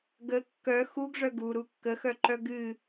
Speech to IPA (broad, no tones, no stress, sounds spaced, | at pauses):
ɡ ə kː œ x u ɡ ʐ œ ɡ u ɾ u kː ə x œ ǃ œ ɡ ɨ